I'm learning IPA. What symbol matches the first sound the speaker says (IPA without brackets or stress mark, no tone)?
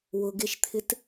w